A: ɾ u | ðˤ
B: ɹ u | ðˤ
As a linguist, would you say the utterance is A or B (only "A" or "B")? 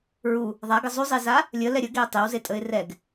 B